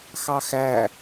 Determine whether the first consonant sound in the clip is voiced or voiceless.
voiceless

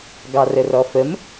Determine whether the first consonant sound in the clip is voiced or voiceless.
voiced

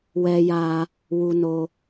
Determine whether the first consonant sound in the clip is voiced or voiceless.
voiced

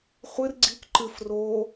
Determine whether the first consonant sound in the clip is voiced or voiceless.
voiceless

